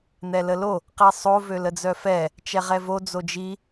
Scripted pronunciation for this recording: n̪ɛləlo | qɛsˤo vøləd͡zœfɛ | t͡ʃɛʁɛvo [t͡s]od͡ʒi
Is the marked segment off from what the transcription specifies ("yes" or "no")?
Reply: yes